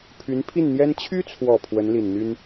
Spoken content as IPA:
pʰ y˧˥ n pʰ i˥˩ n n̪ j ɛ˥ n t͡ɕʰ y˥ t͡sʰ w ɔ˨˩ pʰ w ə˧˥ n l i˨˩ n n̪ y˥ n

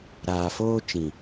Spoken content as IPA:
ɾ aː˨ f oː˦ t͡ʃ ĩ˨

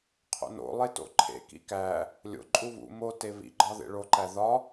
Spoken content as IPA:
qʰ o̰ n o̰ lˠ e t o̰ ǃʰ ḛ k ḭ k æ | lʲ o̰ ǃʼ u β ṵ m o t e β ḭ ɡ͡ǃ ɒ ð ḛ ɭ o ǃ æ ð ɒ

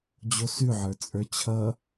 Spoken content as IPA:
d͡ʑ o s ʉ ʕ ə˞ t͡sʼ ə˞ t͡ɕʰ ʌ

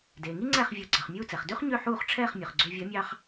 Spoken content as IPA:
d eː˩ ŋ i˥ ŋ͡ǀ æ˥˩ χ vʲ o˩˥ ɡ͡ǀ ɑ˩ χ mʲ uː˥˩ t͡s ɛ˩ χ d ʉ˥ χ ɲ ø˥˩ ħ uː˥˩ χ ʈ͡ʂʰ ɛː˥˩ χ mʲ ɵ˩ χ ɡ͡ǀ ø˧ vʲ ɔ˩˥ mʲ ɑ˧ χ

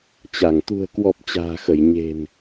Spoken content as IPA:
t͡ɕ a˧˩ ŋ t̪ ṳ˨˩ ə̯ k w ɔ˨˩ p̚ t͡ɕ a̤ː˨˩ x ə˧˩ j ɲ e̤˨˩ n

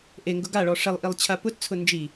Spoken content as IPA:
ʔ e ŋ ɡ ʊ ɡ a ɭ ɔ ʂ ɛ lˠ ʔ i lˠ t͡ɕʰ a p ʊ t t͡sʰ ʊ n d͡ʒ i

